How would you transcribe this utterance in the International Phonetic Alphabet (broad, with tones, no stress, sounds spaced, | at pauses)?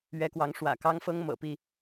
ɥ ɛ˨˦ k w ɑ˨˦ ŋ ʂ w ä̰˨˩ k ɑ˦ ŋ f ɤ˦ ŋ m ɤ̰˨˩ p i˥˨